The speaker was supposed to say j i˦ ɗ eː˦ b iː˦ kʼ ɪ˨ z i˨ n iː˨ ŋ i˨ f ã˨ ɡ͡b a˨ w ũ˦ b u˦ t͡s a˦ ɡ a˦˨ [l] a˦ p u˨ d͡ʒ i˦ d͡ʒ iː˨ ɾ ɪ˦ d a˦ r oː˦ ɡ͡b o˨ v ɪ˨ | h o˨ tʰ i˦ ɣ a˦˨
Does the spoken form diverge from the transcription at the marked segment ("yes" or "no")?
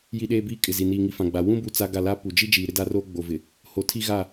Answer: no